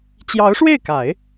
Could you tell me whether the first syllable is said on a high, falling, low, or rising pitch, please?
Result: rising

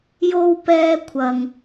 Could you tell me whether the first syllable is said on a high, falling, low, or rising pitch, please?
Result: high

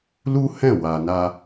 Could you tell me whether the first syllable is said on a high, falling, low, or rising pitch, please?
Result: high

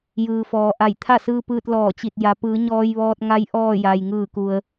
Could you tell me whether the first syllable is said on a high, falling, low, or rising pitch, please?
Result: low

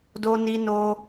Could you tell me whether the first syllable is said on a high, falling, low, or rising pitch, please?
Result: high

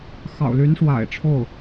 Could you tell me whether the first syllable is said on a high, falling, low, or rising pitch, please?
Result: low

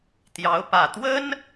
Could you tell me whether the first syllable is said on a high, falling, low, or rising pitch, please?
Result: rising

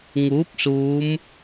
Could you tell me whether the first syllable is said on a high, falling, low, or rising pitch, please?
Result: rising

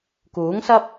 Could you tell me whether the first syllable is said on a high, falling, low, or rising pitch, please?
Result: rising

